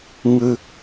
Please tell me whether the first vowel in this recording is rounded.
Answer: no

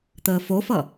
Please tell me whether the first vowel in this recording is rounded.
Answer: no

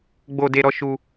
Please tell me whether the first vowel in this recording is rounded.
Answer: yes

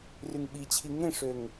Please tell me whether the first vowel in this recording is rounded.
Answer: yes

